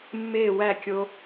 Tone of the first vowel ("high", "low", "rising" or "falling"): falling